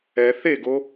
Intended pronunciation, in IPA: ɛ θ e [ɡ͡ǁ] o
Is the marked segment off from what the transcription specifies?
yes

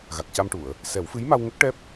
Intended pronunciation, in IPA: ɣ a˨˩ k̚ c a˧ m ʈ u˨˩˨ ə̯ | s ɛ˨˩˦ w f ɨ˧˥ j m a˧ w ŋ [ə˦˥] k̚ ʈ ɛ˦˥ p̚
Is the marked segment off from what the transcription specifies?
no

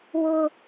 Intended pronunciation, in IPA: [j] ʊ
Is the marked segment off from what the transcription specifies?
yes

